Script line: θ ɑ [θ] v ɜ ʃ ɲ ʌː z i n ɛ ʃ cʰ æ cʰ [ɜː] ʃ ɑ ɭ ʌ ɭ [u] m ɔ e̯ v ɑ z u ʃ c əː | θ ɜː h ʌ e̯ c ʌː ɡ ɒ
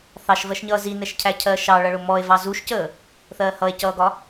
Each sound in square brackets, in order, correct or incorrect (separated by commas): incorrect, correct, incorrect